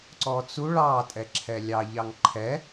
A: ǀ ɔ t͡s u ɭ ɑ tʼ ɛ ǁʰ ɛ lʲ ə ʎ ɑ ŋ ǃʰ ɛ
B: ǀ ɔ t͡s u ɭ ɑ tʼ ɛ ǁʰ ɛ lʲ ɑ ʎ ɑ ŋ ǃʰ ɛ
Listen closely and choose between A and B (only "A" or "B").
B